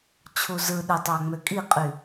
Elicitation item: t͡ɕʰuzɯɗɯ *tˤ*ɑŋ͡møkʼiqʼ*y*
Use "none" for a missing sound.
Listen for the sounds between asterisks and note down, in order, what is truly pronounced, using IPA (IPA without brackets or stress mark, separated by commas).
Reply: tˤ, y